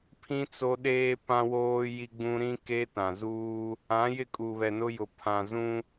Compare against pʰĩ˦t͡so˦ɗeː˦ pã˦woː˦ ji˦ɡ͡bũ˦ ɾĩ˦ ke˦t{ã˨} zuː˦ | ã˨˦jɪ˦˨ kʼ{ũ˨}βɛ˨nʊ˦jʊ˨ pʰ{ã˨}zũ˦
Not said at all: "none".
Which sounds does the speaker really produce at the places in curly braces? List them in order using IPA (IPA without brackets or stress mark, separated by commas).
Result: ã˨, u˨, ã˨